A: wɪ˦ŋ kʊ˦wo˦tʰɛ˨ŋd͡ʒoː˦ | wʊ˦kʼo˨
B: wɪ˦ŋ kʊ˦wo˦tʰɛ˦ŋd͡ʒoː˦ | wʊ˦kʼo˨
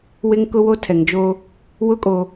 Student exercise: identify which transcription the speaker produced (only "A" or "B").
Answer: A